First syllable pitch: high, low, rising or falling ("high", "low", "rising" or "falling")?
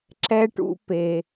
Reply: high